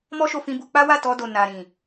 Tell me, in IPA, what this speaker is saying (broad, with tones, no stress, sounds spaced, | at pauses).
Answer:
m ɔ˦ ʃ o˧ f ĩ˧ b u˧ k͡p a˦ w a˦˨ t ɔ˧ d o˨ n a˨ ɾ ĩ˨